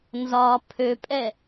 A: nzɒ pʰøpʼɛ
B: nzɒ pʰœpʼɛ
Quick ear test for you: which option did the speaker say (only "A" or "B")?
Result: A